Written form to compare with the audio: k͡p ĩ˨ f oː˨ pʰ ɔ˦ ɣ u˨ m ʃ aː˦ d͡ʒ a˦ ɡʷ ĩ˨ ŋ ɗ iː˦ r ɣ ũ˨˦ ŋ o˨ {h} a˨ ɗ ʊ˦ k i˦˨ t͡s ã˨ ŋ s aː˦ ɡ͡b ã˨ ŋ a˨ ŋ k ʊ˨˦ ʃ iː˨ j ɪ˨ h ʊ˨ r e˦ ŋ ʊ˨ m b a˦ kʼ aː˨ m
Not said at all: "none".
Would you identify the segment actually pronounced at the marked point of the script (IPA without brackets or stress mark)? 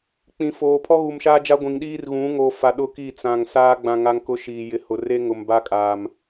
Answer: f